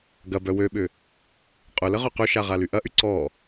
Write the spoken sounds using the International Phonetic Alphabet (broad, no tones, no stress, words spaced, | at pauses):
ɡɐbœ wøɓʏ | qʼʊləʁœ qøʃaʁaly ʔɐʔy ǀɔ